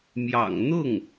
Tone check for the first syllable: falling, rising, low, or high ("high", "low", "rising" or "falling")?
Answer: low